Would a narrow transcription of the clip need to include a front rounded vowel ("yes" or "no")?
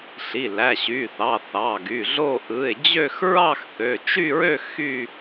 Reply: yes